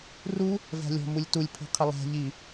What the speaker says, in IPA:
r u | v æ̤ lʲ ɔ̤ m u lʲ t u lʲ pʰ i̤ qʰ ɪ lˠ æ̤ ʎ i

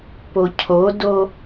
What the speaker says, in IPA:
p o cʰ o d o

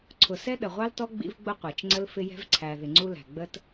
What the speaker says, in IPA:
ǀʰ ʊ˨ s ɛ˦ ɗ ə˨ ʁʷ ɑ˦ l t ɔ˦ ɡ͡b ḭ˦ v ɡ͡b ʊ˦ qʷ æ˨ t͡ʃ ŋ͡ǀ ə˦ l f ɪ˦ j ɛ̤˦ v ǀʰ æ˨ ð ɪ˨ ŋ͡ǀ u˦ l æ̤˨ ɡ͡b ə˦ t

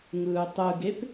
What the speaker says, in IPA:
ŋ ɯː tˤ ɯ ɡ e p

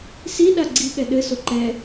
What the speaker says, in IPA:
s i ɗ a ɡ͡ǀ i ɠ ɛ ɗ ɘ s o ǃ ɛ

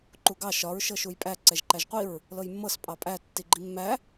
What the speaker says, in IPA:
ǃ u ɡ ɑ ʃ ɒ ɹ ʃ ɤ ʃ u j pʼ æ ǀ ɛ ʒ ǃ æ ʒ qʷ i ɹ | l ɤ j mː ɤ s pʼ ɑ pʼ æ tː i ɡ͡ǃ i mː æ

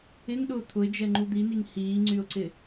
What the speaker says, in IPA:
ɪ ŋ ɗ ʊː t̪ʰ ʊ ɪ̯ d͡ʒ ɛ ŋ͡ǃ u d̪ i n i ŋ h iː ŋ͡ǀ y ʊ̯ ǀ ɪ

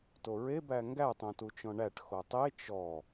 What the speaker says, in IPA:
t o ɹ e b æ ŋ ɡ æ tˤ õ t u t͡ʃ ɔ̃ ɳ æ ʈ x o tˤ e t͡ʃ ɔ

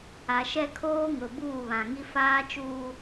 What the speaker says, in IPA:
a˨ ʃ ɛ˦ kʰ oː˦ ŋ ʊ˨ b uː˦˨ β ã˨ ŋ i˦ f aː˦ t͡ʃ uː˦

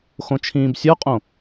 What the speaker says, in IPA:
x õ t͡ʃʰ ĩː b sʲ ɔ qʼ õ

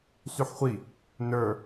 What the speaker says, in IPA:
s y ħ χʷ i | n ə˞

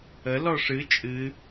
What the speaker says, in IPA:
ə l ɔ ʂ ɨ t͡ʃʼ ɨ

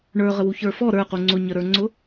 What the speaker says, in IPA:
ɳ ə˞ ʁ ə w u ç ə˞ f ɔ ɾ ə˞ q u ŋ͡ǀ ʊ ɲ ə ɾ ə˞ ŋ͡ǀ ʊ

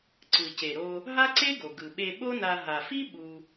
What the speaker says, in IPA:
ǀ ɯ˩ c e˩ ɾ o˧ | ɦ a˥ ǀ e˥ ɡ o˩ ɡ ɯ˩ ɓ e˧ ɓ o˥ n a˧ ɦ a˩ f i˥ ɓ u˧

